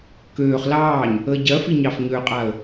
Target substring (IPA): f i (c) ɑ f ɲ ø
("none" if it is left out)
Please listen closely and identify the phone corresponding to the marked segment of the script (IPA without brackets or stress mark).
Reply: ɲ